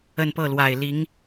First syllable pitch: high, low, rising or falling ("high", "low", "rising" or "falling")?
falling